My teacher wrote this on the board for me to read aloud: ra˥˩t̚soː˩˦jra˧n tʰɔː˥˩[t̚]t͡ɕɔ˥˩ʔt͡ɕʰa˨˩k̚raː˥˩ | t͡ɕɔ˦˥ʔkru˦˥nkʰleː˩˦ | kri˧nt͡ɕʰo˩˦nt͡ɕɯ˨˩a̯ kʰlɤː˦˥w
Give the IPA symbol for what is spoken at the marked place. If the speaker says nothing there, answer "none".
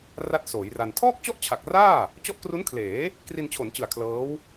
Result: k̚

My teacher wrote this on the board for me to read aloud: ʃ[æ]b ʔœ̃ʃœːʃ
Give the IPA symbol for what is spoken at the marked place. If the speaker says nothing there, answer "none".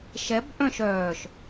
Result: ɛ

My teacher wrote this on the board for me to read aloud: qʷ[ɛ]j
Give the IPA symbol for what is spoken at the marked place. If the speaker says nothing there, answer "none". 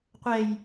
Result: ɛ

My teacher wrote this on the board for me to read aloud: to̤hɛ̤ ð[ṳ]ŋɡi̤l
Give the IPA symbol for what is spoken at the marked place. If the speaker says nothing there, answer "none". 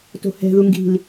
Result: u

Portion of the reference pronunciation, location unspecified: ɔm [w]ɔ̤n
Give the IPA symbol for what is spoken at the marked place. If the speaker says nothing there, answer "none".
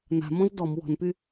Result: w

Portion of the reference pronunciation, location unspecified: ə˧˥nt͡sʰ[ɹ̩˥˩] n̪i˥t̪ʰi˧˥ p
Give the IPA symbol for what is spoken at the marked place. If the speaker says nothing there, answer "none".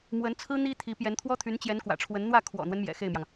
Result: ɹ̩˥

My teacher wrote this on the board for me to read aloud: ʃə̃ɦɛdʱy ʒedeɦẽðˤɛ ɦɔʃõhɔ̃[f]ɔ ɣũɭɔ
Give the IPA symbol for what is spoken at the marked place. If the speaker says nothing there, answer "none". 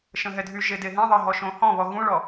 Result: β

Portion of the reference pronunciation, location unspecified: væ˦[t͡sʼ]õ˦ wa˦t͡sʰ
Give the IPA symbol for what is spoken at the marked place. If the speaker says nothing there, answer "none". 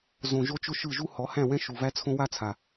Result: t͡sʰ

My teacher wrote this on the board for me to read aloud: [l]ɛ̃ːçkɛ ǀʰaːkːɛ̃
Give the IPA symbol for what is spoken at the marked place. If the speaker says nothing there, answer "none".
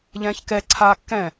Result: ʎ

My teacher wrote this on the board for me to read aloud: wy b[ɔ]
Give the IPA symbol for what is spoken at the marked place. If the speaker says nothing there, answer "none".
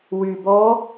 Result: ɔ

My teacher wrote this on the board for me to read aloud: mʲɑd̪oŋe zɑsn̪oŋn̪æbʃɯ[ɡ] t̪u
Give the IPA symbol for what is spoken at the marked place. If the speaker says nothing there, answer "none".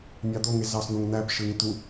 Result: ŋ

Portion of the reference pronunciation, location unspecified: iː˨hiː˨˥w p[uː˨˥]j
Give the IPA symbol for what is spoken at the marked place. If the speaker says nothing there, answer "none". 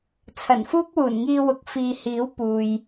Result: uː˨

